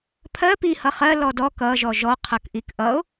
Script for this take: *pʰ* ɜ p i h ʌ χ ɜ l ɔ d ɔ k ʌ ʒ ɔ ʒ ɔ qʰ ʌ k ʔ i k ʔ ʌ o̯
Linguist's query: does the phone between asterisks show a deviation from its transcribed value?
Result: no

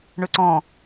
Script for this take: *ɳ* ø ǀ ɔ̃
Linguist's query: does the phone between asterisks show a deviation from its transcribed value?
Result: no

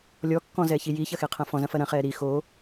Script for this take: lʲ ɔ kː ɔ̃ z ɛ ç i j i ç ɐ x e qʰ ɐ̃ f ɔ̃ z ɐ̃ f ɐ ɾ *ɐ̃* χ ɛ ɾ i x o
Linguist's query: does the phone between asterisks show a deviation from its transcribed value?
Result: no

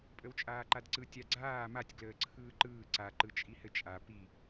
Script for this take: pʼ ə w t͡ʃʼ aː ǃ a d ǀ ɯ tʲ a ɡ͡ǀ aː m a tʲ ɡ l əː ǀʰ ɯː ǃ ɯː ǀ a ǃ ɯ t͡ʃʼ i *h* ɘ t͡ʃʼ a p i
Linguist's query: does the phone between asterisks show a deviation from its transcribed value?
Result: no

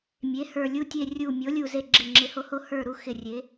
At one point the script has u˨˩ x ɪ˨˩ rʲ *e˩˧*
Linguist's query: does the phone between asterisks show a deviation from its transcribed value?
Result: no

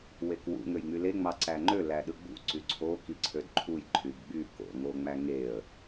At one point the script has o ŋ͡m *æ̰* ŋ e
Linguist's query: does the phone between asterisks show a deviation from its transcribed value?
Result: yes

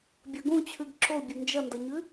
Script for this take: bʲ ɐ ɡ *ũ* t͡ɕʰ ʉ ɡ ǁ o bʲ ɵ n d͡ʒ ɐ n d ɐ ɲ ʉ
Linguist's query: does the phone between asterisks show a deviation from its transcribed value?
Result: no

